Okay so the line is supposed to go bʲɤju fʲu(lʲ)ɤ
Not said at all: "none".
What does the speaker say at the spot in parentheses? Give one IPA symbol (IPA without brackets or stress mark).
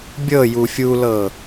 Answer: l